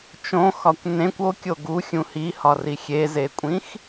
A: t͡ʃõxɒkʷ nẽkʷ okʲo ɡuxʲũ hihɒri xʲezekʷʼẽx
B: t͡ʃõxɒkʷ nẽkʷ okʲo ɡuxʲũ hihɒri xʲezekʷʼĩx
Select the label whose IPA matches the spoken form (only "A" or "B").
B